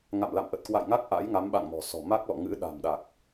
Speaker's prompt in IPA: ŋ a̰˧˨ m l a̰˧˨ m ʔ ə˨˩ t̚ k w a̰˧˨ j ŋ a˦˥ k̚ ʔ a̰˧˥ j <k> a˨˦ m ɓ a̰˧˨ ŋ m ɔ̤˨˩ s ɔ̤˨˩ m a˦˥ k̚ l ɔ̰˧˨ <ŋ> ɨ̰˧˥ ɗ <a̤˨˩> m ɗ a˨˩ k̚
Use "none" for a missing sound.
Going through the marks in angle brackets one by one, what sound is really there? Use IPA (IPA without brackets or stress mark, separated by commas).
ŋ, ŋ, a̤˨˩